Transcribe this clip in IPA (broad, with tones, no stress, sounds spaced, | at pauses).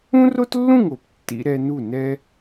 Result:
ũ˦ r o˦ t lː ũ˦˨ ŋ o˨ p tː ḭ˧ ɾ ɛ˧ n u˦˨ n ɛ˦